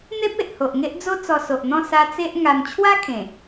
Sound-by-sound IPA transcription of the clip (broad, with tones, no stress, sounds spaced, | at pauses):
n̪ e˦ p̚ e˨ ʔ h o˨ ʔ ŋ e˦ ʔ d͡z o˦ t͡s ɔ˧ s o˨ ʔ n̪ ɔ̃˥˧ s a˧ t͡s e˦ ʔ ŋ a˧ m t͡ɕʰ w a˦ kʰ ẽ˨˩